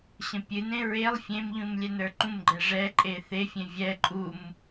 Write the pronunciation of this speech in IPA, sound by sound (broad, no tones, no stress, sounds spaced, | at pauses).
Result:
ɕ ə̃ pʲ ɨ n ẽ ɹ e lˠ fʲ ẽ m ʎ ũ m lʲ ɛ n ə˞ ǃ ũ m ɡ͡ǃ ɛ ʐ ɛ ǃʼ e θ e fʲ ẽ vʲ ɛ ǃʼ u m